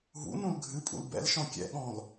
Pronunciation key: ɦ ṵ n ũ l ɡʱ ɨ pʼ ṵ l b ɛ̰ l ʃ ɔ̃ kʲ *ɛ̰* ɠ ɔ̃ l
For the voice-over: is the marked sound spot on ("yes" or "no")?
yes